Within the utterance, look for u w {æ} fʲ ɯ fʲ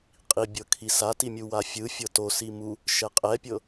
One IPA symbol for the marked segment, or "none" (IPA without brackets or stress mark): a